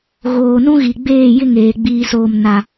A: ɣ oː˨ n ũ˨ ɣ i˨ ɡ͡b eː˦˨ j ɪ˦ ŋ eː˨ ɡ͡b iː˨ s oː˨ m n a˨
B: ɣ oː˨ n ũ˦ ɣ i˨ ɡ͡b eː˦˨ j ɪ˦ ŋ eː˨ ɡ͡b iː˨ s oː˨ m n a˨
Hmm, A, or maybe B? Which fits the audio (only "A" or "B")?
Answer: B